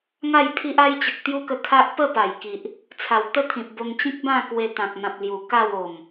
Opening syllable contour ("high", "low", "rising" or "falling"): falling